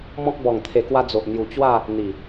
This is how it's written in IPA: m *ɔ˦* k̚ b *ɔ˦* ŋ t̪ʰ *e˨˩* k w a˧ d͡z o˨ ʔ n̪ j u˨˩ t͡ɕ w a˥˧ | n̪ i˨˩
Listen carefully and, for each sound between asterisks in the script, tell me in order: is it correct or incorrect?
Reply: incorrect, incorrect, correct

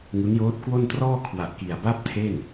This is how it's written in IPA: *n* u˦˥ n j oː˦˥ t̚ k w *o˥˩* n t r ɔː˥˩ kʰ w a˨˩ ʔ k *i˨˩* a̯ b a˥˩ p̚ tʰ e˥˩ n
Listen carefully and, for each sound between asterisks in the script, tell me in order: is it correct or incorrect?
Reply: incorrect, correct, correct

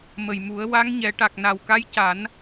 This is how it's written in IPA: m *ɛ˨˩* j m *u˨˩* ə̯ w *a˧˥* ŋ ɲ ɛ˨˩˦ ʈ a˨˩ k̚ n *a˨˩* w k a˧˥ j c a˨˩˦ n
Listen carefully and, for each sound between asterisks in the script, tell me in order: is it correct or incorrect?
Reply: incorrect, incorrect, correct, correct

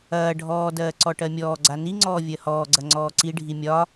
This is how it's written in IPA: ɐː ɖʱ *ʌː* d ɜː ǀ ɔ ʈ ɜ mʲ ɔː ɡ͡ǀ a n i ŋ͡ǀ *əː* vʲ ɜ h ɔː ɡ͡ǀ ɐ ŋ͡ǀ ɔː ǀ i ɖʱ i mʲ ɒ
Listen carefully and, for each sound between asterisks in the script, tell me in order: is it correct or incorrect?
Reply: incorrect, incorrect

